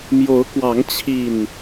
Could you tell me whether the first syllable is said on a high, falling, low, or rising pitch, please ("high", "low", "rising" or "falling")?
rising